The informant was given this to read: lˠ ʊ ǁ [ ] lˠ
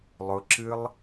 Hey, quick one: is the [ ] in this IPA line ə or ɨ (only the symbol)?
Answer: ɨ